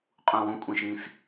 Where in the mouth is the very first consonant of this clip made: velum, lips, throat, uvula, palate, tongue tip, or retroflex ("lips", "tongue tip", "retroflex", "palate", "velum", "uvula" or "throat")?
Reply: uvula